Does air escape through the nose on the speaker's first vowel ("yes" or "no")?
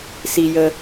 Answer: no